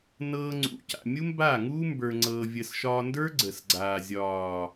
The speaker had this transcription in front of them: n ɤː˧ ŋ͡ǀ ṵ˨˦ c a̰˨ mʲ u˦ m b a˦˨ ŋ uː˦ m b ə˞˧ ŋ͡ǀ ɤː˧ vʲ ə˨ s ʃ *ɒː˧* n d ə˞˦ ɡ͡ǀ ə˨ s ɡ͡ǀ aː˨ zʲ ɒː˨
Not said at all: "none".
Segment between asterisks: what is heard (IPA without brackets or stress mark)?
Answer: ɒː˧